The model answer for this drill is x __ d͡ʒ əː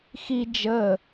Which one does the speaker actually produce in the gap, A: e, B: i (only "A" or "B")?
B